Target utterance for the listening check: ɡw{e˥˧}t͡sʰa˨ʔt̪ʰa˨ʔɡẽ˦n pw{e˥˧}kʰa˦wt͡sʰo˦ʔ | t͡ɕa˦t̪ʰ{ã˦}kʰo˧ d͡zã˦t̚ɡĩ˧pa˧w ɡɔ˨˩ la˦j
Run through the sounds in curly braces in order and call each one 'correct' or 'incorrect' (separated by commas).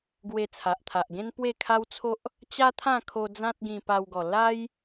incorrect, correct, incorrect